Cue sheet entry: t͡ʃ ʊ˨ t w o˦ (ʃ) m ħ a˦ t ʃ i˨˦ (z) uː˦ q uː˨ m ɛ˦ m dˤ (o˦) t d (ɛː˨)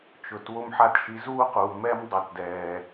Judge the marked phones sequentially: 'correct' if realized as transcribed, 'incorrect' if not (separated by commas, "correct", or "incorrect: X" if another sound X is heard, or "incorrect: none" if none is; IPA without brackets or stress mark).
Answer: incorrect: none, correct, incorrect: o˨, correct